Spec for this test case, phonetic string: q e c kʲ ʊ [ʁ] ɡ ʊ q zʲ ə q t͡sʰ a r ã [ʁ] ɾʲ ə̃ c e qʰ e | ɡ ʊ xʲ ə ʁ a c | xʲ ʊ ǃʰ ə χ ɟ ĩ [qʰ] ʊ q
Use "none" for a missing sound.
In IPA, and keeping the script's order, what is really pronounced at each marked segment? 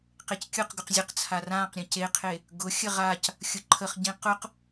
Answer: q, q, q

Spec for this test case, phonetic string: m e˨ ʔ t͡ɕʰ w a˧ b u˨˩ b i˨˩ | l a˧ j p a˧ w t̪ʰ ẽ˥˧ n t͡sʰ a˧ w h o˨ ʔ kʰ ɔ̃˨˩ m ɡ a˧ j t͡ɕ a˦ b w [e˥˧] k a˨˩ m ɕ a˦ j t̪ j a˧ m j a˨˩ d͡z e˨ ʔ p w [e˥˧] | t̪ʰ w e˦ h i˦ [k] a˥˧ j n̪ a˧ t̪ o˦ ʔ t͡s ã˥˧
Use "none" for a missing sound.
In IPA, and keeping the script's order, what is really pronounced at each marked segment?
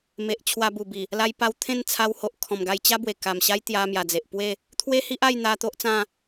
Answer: e˨˩, e˥˧, ʔ

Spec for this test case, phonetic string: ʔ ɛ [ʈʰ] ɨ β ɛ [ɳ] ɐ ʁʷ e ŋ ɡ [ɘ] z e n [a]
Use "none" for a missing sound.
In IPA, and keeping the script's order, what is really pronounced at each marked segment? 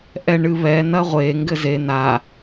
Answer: ɳ, n, ɘ, a

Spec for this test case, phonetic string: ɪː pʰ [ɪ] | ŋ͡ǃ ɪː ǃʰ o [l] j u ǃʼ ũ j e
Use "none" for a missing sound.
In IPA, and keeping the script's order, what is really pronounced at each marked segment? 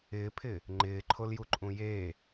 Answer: ɪ, l

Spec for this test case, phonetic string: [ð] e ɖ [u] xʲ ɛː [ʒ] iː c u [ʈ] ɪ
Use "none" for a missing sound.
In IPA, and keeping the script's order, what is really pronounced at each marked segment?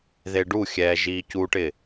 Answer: ð, u, ʒ, ʈ

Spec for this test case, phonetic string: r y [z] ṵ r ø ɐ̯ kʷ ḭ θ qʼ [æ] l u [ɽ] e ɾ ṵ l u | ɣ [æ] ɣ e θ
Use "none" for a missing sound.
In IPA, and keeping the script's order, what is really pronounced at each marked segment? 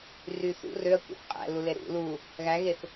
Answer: θ, æ̰, l, æ

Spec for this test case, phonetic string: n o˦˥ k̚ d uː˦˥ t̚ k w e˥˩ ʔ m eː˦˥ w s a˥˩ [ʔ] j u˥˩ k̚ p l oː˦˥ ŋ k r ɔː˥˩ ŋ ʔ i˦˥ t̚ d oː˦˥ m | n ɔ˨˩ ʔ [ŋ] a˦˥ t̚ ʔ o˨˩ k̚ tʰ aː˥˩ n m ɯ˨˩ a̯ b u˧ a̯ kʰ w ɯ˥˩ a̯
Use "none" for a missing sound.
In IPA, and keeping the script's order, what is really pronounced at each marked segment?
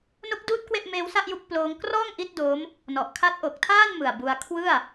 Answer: ʔ, kʰ

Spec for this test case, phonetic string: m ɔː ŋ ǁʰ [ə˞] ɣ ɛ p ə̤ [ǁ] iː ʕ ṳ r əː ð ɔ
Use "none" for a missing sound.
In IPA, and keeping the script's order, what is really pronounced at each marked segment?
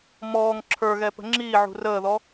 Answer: ə˞, ŋ͡ǁ

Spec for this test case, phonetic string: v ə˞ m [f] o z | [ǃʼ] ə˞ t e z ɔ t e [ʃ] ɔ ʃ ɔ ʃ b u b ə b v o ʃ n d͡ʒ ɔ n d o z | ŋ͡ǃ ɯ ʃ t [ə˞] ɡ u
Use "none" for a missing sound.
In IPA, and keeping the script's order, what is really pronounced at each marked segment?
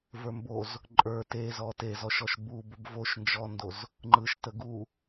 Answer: b, ǃʼ, z, ə

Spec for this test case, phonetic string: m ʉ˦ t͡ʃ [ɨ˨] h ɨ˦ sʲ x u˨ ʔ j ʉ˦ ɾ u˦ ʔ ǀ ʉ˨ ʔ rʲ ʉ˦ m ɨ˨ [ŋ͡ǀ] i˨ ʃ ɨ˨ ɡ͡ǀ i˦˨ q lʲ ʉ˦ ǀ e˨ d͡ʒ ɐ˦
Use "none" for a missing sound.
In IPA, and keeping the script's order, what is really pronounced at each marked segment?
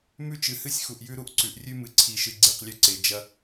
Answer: ɨ˨, ǀʰ

